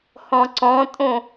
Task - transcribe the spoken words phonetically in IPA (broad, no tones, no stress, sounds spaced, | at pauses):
h ɔ̃ ǀ ɔ̃ tʼ õ